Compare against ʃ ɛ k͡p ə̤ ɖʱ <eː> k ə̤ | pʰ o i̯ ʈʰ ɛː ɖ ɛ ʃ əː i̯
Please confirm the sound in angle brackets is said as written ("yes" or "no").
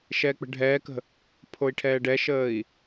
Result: no